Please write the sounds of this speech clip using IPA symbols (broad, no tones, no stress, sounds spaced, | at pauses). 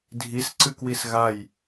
dʱ i s ǀ ɨ k w i s ɣ a j